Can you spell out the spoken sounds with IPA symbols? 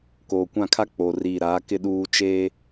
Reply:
koː˨kʷã˦˨kʰa˦ k͡po˨ri˦˨ ɾaː˨˦kɪ˦ ɗuː˦t͡ʃeː˦

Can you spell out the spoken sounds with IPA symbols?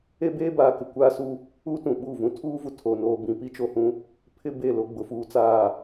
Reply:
e˦beː˦baː˨ kɪ˨ kʷaː˦su˦ | uː˦tũ˨ɓu˦˨vũ˦ tʰuː˦vu˨ tʰo˨noː˨ bĩ˨pi˦t͡ʃo˨ hũ˦ | pʰɪ˦be˦˨ lo˦ɡ͡bʊ˨fuː˦t͡saː˦˨

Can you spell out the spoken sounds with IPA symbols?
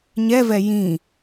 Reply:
ɲɛvɛ jĩ

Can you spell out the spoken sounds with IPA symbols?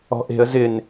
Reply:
ɔ̤ʔe̤ə̯ zɪn

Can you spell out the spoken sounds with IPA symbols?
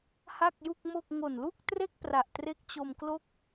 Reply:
ha˥˩k̚ju˥˩k̚mo˥˩k̚ ŋo˨˩nlu˥˩k̚tre˥˩k̚pra˨˩ʔ tre˦˥k̚t͡ɕo˧mklo˥˩k̚

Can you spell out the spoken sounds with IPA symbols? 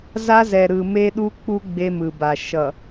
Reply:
za˦zɛ˨ ɾɯ˨ me˦ɗu˦k͡pu˦ ɡ͡be˦mɯ˨ba˨ ʃʌ˨

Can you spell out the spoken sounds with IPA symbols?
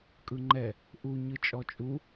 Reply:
kʼɯŋ͡ǃɛ | ʔu ɲɯt͡ʃʼɔt͡ʃʼu

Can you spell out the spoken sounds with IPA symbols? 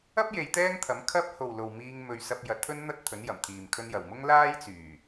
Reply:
ɐ˥p̚je˨˧j t̪ɛː˥ŋt̪ʰɐ˨˥m kʰɐ˥p̚ ho˨wlo˨wmiː˧ŋ mɵ˧ɥ sɐ˧p̚jɐ˨˥t̚t̪ʰɵ˥n n̪ɐ˥t̚t̪ʰɵ˨˥njɐ˨˩mt̪ʰiː˨m kʰɵ˧njɐ˨˩wmʊ˥ŋ laː˥jt͡syː˨˩

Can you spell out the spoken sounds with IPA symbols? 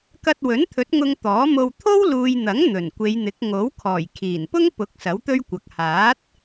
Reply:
kɐ˧t̚wɵ˨˥nt̪ʰɵ˨˥t̚ ŋʊ˨ŋ t̪ɔː˨˥mo˧w t̪ʰo˥wluː˨jn̪ɐ˨˥ŋ n̪ɵ˨˩nkʷe˨˧jn̪ɪ˨˥k̚ ŋo˨˥wkʰɔː˨˩j kʰiː˨˩npʊ˥ŋpʊ˨˥k̚ sɐ˨˥wt̪ɵ˥ɥkʷɐ˨k̚ haː˨˥t̚

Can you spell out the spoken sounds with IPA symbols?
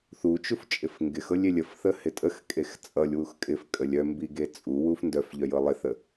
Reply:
θut͡ʃuft͡ʃʼɪf ŋɡɪxɤlʲelʲ əfθə hɪtʼəx kʼext͡sʼʌlʲ wuxkʼɪfkʼəlʲ œmbiɡe t͡sʼuwuf ndœfʎœ jɤlˠɪθə

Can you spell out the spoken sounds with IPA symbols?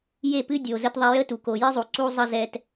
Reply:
je˦˨pɨ˦dʲo˨ zə˦tðˤɛ˦ jə˦tu˨ ko˨jɨ˦zˤu˨ ǀu˦zˤə˦zɛ˦t

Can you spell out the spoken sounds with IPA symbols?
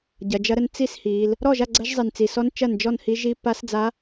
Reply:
ɟɐ˩˧d͡ʒɐ˧˥ɾə˧˥n t͡si˥˩shi˩˧l | ɾɔ˥˩ʒa˥˩ ɡ͡ǀɐ˧˥ʒzˤi˨˩nt͡si˨˩sɔ˧˥n t͡ʃɐ˥˩nd͡ʒɔ˥˩nhi˧˥ ʒi˧˥ pa˧˥sd͡za˧˥

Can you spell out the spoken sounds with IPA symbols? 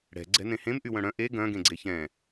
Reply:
ɽɛ̤ ɡ͡ǀɛ̤nẽhẽm ʔywœ̃ɽœ̃ ʔe ɡœ̃ ɡẽɡ͡ǀeçɛ̃

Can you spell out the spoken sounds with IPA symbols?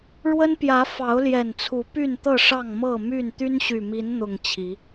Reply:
ɻwə˦npjä˨˦ fɑ˨˦ʊ̯ljɛ˨˩nt͡sʰu˨˦ py˥˨nt̪ɤ˥˨ʂɑ˥˨ŋ mɤ˥˨my˥˨n t̪y˦nɕy˨˩mi˨˦nn̪ʊ˨˩ŋ t͡ɕʰi˨˦

